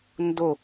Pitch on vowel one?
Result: falling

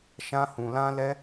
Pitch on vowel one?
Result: high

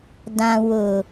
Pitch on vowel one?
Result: low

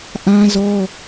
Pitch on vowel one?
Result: high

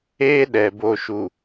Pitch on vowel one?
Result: high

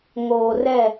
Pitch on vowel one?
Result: low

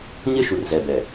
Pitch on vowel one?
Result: high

